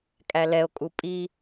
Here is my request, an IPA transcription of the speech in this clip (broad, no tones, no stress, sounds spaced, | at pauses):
kʼ æ l ɛ o̯ kʼ u pʼ i